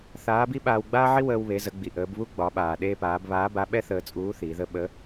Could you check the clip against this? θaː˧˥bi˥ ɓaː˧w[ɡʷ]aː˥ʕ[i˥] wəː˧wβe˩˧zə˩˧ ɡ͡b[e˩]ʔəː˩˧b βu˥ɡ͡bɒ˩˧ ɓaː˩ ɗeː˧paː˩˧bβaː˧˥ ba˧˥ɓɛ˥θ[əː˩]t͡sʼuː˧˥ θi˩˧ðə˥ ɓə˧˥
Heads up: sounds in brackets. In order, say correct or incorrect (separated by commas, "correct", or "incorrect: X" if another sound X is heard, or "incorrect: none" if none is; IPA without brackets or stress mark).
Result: incorrect: ɡ͡b, correct, incorrect: i˩, incorrect: əː˧